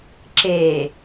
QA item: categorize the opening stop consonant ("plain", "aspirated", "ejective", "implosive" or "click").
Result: click